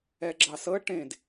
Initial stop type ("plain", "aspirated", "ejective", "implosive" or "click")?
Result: click